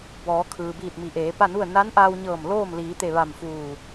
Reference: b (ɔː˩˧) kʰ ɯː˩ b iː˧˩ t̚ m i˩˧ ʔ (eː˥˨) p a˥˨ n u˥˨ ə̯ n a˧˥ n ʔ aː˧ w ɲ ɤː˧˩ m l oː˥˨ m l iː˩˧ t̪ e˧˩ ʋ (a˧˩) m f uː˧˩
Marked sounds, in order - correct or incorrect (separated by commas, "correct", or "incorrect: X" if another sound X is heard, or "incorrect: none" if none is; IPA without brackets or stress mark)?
correct, incorrect: eː˩˧, correct